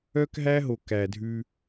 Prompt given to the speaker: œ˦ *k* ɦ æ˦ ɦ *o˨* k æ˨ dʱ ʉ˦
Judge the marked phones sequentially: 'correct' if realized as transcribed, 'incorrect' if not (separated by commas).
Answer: correct, correct